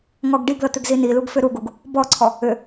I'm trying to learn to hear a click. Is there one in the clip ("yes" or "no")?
yes